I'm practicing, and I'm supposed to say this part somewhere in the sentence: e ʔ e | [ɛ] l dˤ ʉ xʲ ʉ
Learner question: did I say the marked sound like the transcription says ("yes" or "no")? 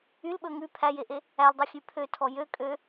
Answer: no